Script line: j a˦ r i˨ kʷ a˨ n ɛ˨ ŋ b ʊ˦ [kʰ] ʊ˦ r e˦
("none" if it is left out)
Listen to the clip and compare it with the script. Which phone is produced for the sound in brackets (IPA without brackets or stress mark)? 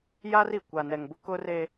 k